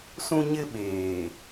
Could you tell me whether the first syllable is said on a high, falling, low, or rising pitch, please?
high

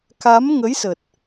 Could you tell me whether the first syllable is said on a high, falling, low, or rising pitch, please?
rising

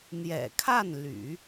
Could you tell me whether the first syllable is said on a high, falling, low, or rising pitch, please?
low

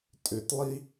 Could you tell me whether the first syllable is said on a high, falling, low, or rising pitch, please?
low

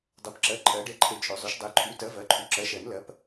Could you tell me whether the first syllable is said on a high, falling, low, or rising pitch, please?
rising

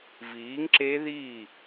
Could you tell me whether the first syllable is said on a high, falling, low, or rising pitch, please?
rising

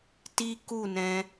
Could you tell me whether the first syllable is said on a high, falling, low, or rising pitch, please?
high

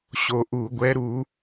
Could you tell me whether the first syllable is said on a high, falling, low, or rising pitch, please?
low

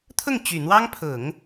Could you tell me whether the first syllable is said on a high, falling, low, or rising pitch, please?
falling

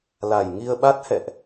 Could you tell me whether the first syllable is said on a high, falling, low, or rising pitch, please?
low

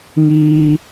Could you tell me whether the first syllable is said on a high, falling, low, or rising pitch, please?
high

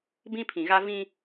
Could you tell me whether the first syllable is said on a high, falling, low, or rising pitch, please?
high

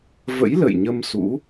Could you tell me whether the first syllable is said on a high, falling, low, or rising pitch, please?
rising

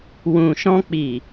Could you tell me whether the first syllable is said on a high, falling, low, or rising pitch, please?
low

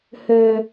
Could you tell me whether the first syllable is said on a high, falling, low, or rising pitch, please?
low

